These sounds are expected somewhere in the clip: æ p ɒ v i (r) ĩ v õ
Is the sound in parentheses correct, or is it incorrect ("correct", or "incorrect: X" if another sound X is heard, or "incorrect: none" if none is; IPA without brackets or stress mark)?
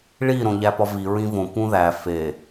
incorrect: ɹ